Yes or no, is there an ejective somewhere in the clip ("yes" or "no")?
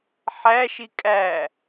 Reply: yes